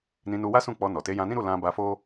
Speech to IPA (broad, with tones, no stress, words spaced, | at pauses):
nĩ˧nu˧wa˦sũ˦˨ k͡pɔ˧nɔ˨ te˨˦ jã˧nĩ˦ɾu˦˨ lã˧ba˧fo˦